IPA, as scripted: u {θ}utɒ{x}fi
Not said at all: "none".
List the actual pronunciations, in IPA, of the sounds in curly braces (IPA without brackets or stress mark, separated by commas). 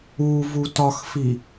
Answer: v, x